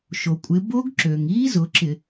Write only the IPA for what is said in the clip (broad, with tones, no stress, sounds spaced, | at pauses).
ʃ o˩ kʷʼ ɪ˩˧ b o˦˥ ɡ ǁ ø˩ ŋ iː˦˥ z ʊ˩˧ ǁ ɪ˧˩˧